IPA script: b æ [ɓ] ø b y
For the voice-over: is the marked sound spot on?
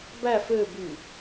no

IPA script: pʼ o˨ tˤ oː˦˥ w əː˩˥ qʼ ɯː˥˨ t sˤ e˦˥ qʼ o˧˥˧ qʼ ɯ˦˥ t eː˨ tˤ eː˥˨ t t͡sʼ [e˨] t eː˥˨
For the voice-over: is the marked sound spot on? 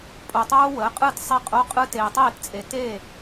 yes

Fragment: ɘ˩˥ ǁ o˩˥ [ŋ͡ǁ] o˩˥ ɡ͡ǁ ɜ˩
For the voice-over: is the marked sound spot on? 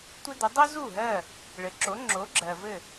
yes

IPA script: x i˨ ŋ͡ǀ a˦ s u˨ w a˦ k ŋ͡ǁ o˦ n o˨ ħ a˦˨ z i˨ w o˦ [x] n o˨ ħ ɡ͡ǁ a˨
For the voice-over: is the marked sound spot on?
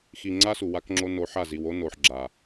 no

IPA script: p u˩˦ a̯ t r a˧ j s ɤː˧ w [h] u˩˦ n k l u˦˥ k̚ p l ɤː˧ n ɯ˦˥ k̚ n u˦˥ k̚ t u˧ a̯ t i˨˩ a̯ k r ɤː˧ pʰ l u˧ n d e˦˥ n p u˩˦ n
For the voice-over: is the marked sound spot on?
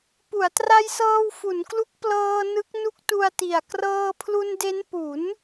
no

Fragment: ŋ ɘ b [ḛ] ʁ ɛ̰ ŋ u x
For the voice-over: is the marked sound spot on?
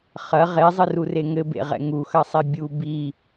yes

